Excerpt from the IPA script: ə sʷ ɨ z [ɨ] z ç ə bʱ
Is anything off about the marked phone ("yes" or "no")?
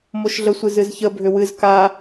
no